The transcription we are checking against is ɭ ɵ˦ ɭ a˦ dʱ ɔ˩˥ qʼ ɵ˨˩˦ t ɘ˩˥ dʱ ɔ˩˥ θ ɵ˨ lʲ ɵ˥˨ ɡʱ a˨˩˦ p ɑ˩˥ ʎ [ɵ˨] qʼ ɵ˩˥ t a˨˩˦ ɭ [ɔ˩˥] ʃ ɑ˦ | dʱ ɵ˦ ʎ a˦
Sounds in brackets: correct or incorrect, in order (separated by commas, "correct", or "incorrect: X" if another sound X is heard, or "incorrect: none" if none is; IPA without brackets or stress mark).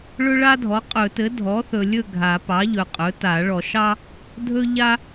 correct, incorrect: ɔ˨˩˦